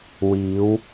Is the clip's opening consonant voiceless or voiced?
voiced